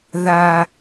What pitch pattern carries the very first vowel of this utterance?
high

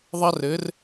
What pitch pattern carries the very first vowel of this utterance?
high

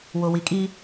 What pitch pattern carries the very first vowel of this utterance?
low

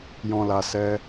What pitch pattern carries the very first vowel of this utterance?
low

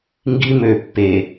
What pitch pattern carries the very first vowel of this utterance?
high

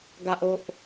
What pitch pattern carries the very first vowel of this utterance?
high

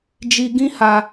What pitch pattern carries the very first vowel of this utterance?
low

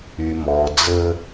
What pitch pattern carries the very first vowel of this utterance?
low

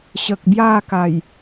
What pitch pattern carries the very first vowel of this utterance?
low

